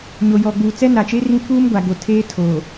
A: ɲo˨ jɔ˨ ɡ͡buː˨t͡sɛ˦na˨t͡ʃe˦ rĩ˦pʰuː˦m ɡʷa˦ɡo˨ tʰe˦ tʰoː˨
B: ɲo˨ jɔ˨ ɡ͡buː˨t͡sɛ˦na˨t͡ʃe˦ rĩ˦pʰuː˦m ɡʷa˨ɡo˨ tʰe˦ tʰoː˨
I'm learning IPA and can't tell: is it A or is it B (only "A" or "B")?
B